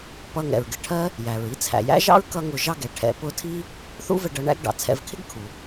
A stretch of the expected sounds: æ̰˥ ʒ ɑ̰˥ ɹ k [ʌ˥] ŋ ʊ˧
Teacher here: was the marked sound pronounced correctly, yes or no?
yes